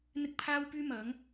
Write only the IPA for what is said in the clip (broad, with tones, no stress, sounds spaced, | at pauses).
n̪ ɪ˥ k̚ pʰ aː˥ w p yː˥ m ɐ˨˥ ŋ